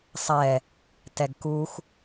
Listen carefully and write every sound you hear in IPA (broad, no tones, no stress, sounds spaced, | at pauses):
sˤ ɛ | t ɛ ɡ k u x